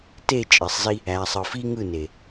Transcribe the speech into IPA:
t e˦˨ t͡ʃʼ e˨ sˤ z i˦ | æ˨ sˤ ɯ˨ f i˦ ŋ ɯ˦˨ n e˨

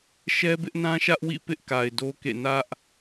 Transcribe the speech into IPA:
ʃ ɛ˦ b ɪ˦ ʔ n ã˦ ʃ ä˦ ʔ w ḭ˦˨ p ɪ˦ ʔ k a˨ ɪ̯ d o˦ k ḛ˦˨ n ä˦ ʔ

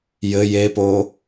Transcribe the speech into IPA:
j ɘ j e p o

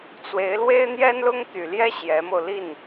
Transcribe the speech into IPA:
t͡s w e˧˥ ɪ̯ l w e˥ ɪ̯ n̪ j ɛ˥ n l ʊ˥ ŋ t̪ y˨˩ l j ɛ˥ ɕ j ɛ˧˥ m o˧ ʊ̯ l i˥˩ n

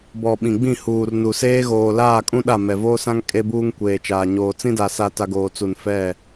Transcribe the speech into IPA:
b ɔ˨ ɓ ĩ˨ ɡ͡b ĩ˦˨ h uː˨ r n u˨ s eː˦ ɣ oː˨ l aː˦˨ kʼ ũ˦ ɗ a˦˨ m ɛ˨ v oː˦ s ã˦ ŋ kʼ e˦ b uː˦ ŋ kʷ eː˨ t͡ʃ aː˨ ɲ oː˨ t͡s ĩ˦ d a˨ s a˨ t a˨ ɡ oː˨ t͡s u˨ n f ɛ˦˨

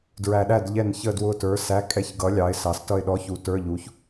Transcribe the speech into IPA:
d ɹ æ˨˩ ɗ æ˦˨ d ʎ ɛ˦˨ n ç ə˦˨ d w ʊ˦˨ t ə˞˨˥ s æ˧˥˧ kʼ ɛ˧˥˧ ç ɡ ʌ˨˥ lʲ ɑ˨˥ ɪ̯ s ɑ˨˥ s t ʌ˦˨ ɪ̯ ɗ ɔ˧˥˧ ç u˨˥ t ə˞˧˥˧ ʎ u˨˥ ç

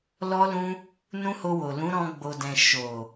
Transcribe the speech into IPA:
l ɔ˦ l ũ˦ | n ũ˦ h o˧ w o˨ l ũ˨˦ ɾ ɔ̃˧ ɡ͡b o˨ d ɛ̃˨ ʃ o˨

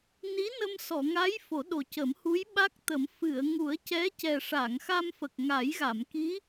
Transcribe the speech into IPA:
n i˧˥ n ə˧ m s ɔ˨˩˨ ŋ a˧˥ j f o˨˩˦ ɗ o˨˩ c ə˨˩˦ m h u˧˥ j ɓ a˦˥ k̚ t̪ ə˨˩˦ m f ɨ˨˩˨ ə̯ ŋ u˨˩˦ ə̯ c ɛ˧˥ c ɛ˨˩ ʂ a˨˩˨ ŋ x a˧ m f ə˨˩ k̚ ŋ a˨˩˦ j ɣ a˨˩˨ m k i˧˥

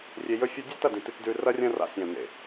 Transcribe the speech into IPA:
rʲ e˧ j ɵ˦ fʲ o˦ dʲ ɵ˦ t ɐ˦˨ d ĩ˨ t i˧ t d ʉ˧ r ɐ˦ rʲ ɐ̃˦ r a̰˧ sʲ ɐ̃˨ n̪ ḛ˨

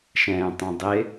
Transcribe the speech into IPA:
ʃ ɛ̃ː tˤ ɛ̃ dˤ ɪ

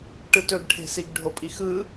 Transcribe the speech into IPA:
ʈ ɯ t ɵ ɡ ʈʰ e̤ s i ɡ ɖʱ o pʼ i x ɯ

